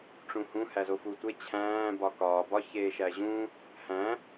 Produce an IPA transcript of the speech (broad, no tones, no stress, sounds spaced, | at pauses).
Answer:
ʈ͡ʂ ũ h ũ h æ z o f u tʷ e t͡ɕʰ æ̃ː b ɒ k ɒː b ɒ ç eː ʃ æ ʑ ũ | h æ̃